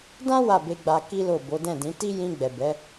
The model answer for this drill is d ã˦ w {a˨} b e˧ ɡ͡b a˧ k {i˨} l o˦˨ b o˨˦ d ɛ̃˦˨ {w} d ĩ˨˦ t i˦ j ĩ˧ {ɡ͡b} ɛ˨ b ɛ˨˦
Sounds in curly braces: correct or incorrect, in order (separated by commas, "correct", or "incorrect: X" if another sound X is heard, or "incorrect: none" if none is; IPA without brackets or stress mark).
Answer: incorrect: a˦˨, incorrect: i˦, incorrect: none, correct